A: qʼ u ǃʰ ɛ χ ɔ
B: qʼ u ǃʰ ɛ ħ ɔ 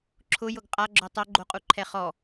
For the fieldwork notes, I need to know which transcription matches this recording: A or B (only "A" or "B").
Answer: A